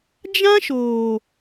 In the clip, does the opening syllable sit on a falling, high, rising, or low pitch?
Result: high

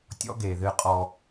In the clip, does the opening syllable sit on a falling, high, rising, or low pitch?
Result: high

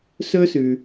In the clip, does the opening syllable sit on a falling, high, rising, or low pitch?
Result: high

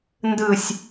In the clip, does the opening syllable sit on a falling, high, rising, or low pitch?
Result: low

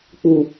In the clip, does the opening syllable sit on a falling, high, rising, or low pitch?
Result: low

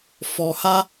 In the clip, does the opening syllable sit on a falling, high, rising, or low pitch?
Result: low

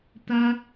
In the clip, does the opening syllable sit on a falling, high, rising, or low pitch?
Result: high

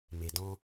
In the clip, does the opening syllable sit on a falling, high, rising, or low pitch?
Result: low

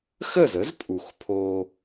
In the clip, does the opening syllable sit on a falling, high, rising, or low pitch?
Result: falling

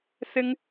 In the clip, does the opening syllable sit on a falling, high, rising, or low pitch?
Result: high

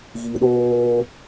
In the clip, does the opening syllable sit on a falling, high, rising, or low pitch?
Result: low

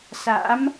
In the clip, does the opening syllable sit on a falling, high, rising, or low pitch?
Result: rising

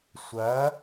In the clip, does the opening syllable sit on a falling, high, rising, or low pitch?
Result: rising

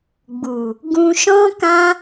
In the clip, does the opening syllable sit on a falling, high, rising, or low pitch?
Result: low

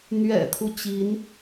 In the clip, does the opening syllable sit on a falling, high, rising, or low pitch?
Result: low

